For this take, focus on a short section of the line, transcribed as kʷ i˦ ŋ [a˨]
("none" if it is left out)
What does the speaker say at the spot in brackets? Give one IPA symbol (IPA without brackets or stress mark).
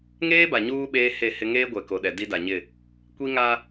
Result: a˦